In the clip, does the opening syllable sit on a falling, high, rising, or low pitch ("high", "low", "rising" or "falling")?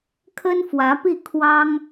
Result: high